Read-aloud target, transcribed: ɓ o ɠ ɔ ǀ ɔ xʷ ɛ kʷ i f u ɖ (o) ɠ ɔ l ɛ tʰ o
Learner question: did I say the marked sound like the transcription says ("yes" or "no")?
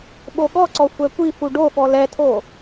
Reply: yes